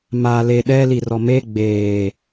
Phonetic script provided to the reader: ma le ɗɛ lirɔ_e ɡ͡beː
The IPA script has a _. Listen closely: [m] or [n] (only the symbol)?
m